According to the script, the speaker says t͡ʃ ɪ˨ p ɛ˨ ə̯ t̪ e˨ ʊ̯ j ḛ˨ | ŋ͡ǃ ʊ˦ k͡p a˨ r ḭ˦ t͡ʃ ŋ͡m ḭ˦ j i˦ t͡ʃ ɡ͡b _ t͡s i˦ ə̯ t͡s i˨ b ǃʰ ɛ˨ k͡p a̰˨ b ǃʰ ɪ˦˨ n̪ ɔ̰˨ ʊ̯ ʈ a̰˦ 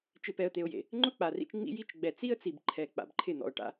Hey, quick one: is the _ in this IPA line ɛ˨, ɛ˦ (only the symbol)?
ɛ˨